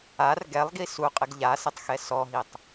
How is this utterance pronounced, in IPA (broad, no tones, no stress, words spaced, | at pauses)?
ar ɡɛlˠɡi suqʼɪɡ ʎasɪtˤxɛ sɔɦitˤ